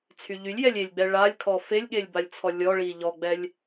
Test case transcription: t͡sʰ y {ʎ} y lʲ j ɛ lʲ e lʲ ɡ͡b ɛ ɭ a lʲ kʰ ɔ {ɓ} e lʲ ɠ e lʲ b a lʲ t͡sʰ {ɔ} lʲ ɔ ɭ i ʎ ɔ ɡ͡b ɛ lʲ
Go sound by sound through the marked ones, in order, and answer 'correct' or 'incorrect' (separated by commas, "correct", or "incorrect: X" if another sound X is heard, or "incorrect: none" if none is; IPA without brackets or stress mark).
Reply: correct, incorrect: f, correct